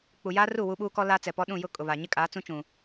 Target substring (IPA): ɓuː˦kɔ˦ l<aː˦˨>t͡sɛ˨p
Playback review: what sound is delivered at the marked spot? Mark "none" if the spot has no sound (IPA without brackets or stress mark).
aː˦